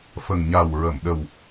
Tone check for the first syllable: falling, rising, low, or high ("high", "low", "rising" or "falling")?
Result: low